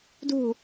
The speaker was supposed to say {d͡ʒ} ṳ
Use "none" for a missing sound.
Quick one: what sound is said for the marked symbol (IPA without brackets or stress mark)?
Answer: d